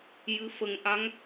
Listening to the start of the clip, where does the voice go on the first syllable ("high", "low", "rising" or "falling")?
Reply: rising